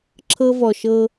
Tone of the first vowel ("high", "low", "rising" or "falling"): high